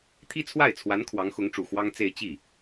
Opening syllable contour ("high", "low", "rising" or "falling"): high